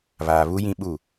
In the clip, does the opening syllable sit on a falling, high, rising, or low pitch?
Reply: low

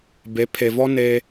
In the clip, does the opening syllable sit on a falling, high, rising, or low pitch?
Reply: rising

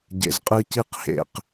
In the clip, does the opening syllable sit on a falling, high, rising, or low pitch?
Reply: low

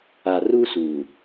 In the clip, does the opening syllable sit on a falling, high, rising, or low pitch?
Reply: low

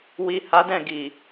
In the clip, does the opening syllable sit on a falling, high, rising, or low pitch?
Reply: low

